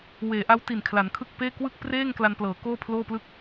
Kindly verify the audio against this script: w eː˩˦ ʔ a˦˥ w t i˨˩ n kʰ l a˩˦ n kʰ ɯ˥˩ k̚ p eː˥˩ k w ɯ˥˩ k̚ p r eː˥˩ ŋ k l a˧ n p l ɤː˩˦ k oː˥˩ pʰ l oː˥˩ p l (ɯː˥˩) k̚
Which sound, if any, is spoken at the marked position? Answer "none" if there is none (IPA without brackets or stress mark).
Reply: ɯ˥˩